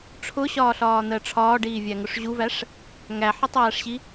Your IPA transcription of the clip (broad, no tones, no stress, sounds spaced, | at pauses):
ʈ͡ʂʰ ʊ ɕ ɒː ɬ ɒː n̪ ɜ ʈ͡ʂʰ ɒː ɖ iː vʲ æ ŋ ʊ ʂ ʑ u v æ ʂ | ŋ æ ħ ə tˤ æː ʂ ɕ i